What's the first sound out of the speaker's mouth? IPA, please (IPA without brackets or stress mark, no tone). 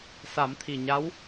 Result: s